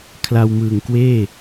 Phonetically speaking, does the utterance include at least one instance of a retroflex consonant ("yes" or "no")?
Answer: no